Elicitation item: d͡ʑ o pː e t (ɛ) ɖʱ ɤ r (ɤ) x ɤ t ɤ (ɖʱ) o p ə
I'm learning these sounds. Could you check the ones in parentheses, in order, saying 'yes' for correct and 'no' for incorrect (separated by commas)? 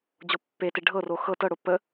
no, no, no